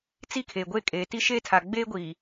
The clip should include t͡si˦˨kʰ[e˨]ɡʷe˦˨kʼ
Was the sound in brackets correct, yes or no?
yes